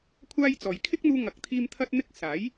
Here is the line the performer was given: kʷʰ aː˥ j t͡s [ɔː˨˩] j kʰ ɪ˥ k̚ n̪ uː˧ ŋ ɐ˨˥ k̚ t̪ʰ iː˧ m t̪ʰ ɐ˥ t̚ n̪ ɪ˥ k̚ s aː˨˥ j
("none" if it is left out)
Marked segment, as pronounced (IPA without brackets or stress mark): ɔː˨